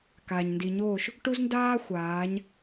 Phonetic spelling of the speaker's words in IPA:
k a˨ ɲ n d i˨ ɲ oː˦˨ ʃ | ʈ u˦ z n d aː˦ xʷ aː˨˦ ɲ

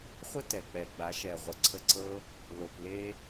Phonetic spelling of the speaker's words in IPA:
χʷ ə˦ t ɛ˨ k͡p ɛ˨ ɡ͡b a˨˦ ʃ ɛ˨ ʁʷ ə˨˦ ǀʰ ə˧ ǀ ɤ˦ | l o˧ p l e˦

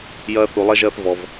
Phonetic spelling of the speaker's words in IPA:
j ɐː˦ θ u˧ lˠ ɐ˦ ʒ ɐː˦ θ v ɔ˧ v

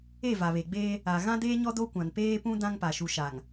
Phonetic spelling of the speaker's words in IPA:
e˦˨ v a˨ β e˨ ɡ͡b eː˦ | a˨ ɣ ã˦ d e˦ ɲ ɔ˦ d o˦ kʷ ã˨ n p eː˦ p ũ˦ d ã˦ ŋ p a˨ ʃ u˨ ʃ a˨ ŋ

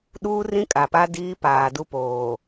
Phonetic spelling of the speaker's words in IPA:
ɗ uː˦ r ĩ˦ kʼ a˨ p a˦ d iː˦ p aː˨ d u˦ p oː˨

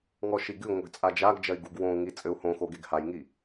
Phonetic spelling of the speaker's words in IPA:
ŋ ɔ ʃ i ɡ ɨ ŋʷ ɘ ɡ t͡sʼ a d͡ʒ a ɡ d͡ʒ ɐ i̯ ɡ u ɡ w õ u̯ ŋ i t͡sʼ ɘ u̯ h õ x o ɡ e ɡ h a j ŋ i

